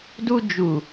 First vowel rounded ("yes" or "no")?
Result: yes